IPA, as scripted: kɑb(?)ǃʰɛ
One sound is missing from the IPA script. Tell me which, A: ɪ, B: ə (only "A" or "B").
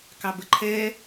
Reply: B